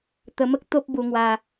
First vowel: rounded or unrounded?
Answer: unrounded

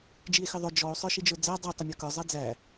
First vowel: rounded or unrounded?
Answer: unrounded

